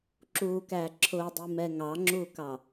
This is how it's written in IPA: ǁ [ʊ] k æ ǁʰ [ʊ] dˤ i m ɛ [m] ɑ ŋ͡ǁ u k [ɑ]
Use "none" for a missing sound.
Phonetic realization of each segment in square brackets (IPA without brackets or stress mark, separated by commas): u, ʊ, ŋ, ɑ